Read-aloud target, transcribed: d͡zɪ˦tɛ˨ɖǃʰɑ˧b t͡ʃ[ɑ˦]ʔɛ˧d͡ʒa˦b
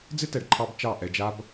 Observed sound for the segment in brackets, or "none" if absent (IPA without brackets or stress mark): ɑ˦˨